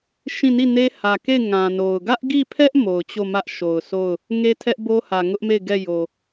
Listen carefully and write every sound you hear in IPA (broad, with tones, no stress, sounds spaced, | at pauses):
ʃ ĩ˦˨ n i˦˨ n e˦ h ä˨ k e˦˨ ɪ̯ ŋ ã˨ n o˨ ʊ̯ ɡ ä˦ ʔ ɡ i˦˨ pʰ ɛ˦ ʔ m o˨ ʊ̯ t͡ɕ o˦˨ m ä˦ ʔ ʃ o˨ ʊ̯ sʰ o˦˨ ʊ̯ | ŋ e˦ tʰ ɛ˦ ʔ b o˦ h ä˨ ŋ ʊ˦ ʔ m e˦˨ ɪ̯ ɡ ɛ˦˨ j o˨